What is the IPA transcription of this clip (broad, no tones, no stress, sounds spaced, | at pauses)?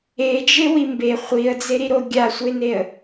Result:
e d͡ʒ e w i m b e χʷ i ə̯ d͡z e ɾ i ɾ o ɡʲ a sʷ e n e ə̯